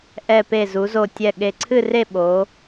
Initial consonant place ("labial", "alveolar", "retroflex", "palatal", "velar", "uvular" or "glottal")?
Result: glottal